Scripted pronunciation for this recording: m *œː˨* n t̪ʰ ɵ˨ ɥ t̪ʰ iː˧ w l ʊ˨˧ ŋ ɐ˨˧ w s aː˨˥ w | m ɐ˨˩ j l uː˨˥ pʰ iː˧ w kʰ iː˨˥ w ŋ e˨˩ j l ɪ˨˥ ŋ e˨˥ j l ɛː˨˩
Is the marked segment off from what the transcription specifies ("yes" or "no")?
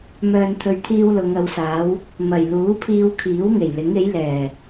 no